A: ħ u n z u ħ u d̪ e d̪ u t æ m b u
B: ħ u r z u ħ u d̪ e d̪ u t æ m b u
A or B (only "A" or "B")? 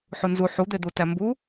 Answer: A